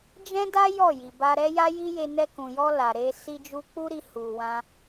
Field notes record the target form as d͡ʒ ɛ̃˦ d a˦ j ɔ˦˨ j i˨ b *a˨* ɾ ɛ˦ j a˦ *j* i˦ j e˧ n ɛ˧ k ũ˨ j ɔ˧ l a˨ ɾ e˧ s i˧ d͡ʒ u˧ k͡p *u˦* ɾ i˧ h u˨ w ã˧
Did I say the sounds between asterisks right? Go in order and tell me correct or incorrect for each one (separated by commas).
incorrect, correct, correct